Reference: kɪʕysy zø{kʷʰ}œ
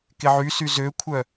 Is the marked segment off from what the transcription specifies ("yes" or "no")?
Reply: no